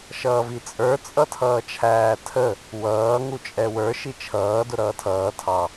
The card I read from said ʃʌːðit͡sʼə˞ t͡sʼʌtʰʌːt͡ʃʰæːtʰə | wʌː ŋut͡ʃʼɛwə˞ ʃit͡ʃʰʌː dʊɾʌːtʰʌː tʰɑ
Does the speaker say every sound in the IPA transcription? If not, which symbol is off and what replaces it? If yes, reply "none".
ð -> v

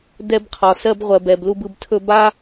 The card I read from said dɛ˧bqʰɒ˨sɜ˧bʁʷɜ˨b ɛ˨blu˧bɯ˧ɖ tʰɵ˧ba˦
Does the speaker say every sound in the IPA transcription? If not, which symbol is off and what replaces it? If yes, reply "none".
ɖ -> b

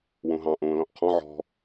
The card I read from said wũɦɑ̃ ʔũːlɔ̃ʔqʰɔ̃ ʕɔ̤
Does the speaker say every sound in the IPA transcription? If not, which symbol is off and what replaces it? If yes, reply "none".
none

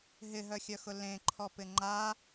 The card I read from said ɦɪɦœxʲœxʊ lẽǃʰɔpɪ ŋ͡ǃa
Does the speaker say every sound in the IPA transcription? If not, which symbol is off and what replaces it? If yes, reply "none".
none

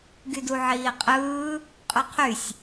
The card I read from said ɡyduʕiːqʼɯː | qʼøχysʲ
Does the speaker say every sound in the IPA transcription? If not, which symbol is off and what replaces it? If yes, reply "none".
χ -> qʰ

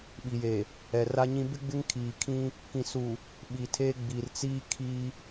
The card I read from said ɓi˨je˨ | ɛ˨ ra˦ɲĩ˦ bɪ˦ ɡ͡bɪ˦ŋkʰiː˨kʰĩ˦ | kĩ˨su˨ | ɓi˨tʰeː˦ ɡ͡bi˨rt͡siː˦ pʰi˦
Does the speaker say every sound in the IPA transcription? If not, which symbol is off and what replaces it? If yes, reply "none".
pʰ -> kʰ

